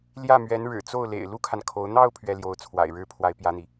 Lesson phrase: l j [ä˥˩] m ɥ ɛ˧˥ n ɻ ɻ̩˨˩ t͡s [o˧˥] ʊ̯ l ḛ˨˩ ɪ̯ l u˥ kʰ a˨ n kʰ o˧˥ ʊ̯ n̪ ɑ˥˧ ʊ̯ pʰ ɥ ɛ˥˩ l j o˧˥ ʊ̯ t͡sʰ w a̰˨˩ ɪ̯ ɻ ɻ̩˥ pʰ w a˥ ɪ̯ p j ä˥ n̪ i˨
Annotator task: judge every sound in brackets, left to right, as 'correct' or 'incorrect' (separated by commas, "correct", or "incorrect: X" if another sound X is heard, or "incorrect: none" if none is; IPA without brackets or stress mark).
correct, incorrect: o˥˩